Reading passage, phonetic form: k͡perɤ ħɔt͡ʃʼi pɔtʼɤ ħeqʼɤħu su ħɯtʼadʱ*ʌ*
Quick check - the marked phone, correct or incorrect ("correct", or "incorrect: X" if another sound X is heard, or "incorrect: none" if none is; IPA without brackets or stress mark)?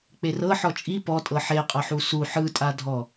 incorrect: ɔ